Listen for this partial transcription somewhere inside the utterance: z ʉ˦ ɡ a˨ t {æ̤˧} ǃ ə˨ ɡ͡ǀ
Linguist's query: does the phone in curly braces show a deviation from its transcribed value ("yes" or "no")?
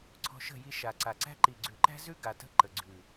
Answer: yes